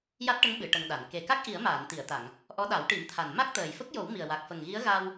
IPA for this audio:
ja˦˥t̚ʈə˧˥ŋ ɓɨ˨˩˨ ʈə˧ŋɗa˨˩˨n ke˨˩ka˦˥k̚ ʔi˨˩˦ə̯maː˨˩˨n t̪i˨˩˨ə̯t̪a˨˩˨ŋ | ʔɔ˧˥ɗa˨˩˦wʈi˨˩˦mt̪ʰa˨˩n ma˦˥k̚t̪əː˨˩jfə˦˥k̚jo˨˩˦w mi˨˩ə̯wa˨˩k̚ fə˨˩ŋɣi˧˥ə̯ɣa˧w

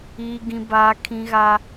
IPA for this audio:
iː˦ɡĩ˦baː˦kʰĩ˦ ɣa˦

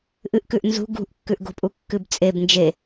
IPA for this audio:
ʔɨʔkʉʔ nzṳ ɡṳʔkːʉʔɡo̤pʼu kːɨbt͡sʼeb nd͡ʒe

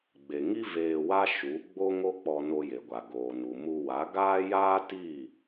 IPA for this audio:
ɡ͡be˨ŋi˦ veː˧wa˦ ʃu˨˦ ɡ͡bo˦ŋo˦k͡pɔ˧ no˧je˨ɡʷa˨ ɡoː˨nu˨mu˧ wa˨˦ɡaː˦ jaː˦ti˦˨

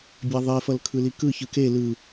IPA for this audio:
bʲaðˤefʌl kʰɯlikɯ çɯke lɯ

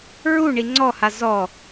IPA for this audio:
ɹu ɳiŋ͡ǀɔha zɔ

